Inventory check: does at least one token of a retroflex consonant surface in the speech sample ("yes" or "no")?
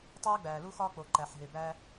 no